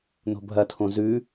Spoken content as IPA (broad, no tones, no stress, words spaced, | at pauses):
no̤bʱɐtʰõ zʉ